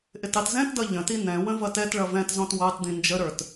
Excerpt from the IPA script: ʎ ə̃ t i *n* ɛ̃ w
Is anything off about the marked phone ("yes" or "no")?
no